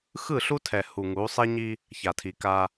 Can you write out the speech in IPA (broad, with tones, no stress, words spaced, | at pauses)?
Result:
xɯ˦˨ɬu˦tʰɛ˨ hu˨ŋu˨˦ sˤe˦ɲi˦ | ça˨tʰi˨ ka˦